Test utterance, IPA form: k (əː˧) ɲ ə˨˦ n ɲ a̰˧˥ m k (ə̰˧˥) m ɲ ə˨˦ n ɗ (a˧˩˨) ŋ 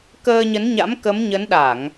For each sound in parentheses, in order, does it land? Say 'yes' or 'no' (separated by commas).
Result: yes, no, yes